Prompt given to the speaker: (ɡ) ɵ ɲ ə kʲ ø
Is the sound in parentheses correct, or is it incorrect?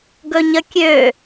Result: correct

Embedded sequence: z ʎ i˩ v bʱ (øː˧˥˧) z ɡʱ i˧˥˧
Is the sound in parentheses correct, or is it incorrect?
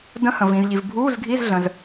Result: incorrect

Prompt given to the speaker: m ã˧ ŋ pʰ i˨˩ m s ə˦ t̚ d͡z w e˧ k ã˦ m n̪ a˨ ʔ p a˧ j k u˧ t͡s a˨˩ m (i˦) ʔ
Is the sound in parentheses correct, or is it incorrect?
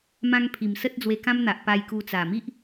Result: correct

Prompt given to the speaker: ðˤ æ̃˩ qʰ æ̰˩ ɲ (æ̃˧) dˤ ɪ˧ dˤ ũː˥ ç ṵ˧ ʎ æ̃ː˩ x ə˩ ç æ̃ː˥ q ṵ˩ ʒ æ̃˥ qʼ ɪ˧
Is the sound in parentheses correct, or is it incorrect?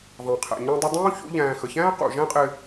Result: correct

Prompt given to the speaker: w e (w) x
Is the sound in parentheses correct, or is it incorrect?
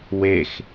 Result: incorrect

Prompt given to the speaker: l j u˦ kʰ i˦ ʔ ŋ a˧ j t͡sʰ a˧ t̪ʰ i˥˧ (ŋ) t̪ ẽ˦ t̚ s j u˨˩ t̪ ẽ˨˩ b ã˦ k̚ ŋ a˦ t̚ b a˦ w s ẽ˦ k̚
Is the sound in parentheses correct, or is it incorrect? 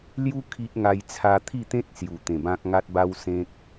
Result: incorrect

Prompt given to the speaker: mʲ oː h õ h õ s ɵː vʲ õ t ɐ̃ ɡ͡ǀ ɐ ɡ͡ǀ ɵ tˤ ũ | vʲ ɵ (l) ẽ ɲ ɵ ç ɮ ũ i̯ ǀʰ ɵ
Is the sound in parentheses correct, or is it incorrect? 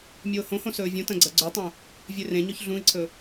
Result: incorrect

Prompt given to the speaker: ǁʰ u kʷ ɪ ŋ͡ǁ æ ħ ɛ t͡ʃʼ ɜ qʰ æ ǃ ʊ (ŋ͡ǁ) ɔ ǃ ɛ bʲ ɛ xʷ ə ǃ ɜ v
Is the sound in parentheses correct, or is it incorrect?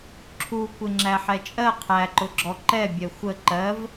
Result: incorrect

